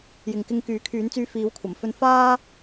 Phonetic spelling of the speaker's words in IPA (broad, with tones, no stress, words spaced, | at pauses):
jɪ˨ŋkɪ˧ŋ kyː˨˥kʰyː˨˥nt͡syː˧ fiː˨˥wkʷʰɐ˨˩mfɵ˧n faː˥